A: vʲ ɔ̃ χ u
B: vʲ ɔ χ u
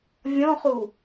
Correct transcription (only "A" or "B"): A